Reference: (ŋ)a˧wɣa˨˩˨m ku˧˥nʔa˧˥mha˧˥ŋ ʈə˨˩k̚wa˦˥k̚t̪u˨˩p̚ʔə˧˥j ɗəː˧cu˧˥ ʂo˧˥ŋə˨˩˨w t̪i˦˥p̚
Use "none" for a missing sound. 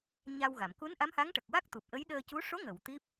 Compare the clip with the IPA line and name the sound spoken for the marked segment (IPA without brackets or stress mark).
ɲ